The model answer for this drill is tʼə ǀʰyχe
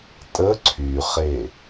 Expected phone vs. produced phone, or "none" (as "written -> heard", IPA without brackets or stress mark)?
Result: none